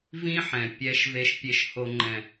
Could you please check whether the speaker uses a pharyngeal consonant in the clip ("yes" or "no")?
yes